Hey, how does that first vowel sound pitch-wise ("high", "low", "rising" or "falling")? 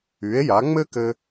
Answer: rising